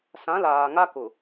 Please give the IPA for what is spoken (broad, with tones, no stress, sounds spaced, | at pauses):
s ã˨˦ l aː˨ ŋ a˦ k ʊ˨